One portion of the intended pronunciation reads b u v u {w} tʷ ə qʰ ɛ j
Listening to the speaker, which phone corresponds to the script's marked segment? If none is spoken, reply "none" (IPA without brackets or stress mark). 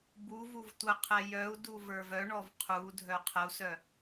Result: v